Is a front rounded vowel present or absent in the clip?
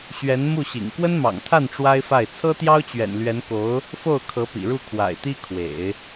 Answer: absent